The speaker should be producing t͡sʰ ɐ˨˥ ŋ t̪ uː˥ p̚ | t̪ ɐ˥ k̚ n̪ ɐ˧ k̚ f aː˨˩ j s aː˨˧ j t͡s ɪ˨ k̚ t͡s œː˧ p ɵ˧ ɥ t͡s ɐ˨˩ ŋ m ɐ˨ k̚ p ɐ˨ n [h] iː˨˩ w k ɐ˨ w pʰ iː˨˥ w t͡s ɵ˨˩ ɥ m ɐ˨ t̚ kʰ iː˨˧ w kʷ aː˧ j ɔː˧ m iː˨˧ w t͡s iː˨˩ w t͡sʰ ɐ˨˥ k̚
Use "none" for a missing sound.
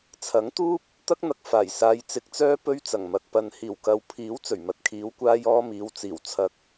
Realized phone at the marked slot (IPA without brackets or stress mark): h